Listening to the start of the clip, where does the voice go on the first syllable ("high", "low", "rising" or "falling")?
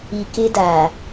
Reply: low